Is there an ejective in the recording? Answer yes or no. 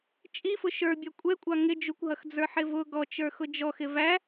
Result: yes